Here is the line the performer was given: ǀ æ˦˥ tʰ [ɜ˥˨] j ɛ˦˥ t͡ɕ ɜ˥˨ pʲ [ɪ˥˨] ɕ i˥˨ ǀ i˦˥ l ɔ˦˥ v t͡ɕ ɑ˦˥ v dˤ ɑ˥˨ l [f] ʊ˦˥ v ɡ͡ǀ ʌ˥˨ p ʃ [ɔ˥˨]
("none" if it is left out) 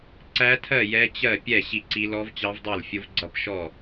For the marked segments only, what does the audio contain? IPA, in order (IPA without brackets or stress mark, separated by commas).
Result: ɜ˥˨, ɛ˥˨, fʲ, ɔ˥˨